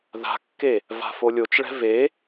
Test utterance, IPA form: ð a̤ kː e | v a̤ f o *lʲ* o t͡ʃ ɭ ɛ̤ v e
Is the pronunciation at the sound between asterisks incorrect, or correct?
correct